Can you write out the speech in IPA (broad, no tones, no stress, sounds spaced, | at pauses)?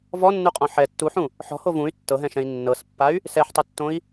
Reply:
v ɔ nː u qʼ ɔ̃ ħ ɛ tː u ħ ũ | ħ ɔ̤ h o v ũ y̯ tː ɤ ɦ ɛ̃ ʃ ɛ̃ i̯ nː ɤ s pː a y̯ | s ɛ ħ tˤ o tː õ i̯